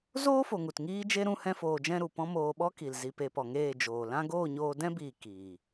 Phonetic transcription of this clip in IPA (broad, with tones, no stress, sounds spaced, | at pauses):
z oː˦ f o˨ ŋ u˨ t ŋ iː˦ d͡ʒ e˦ ɾ ũ˦ h ɛ̃˦ f oː˧ d͡ʒ ɛ̃˦ ɾ u˨ p ɔ̃˦ m oː˧ ɓ ɔ˦ k i˨ l z i˧ p e˧ p ɔ˨ ŋ eː˦˨ d͡ʒ oː˨ l ã˦ ɡ oː˦˨ ɲ oː˧ d ɛ̃˦ b iː˨ k iː˨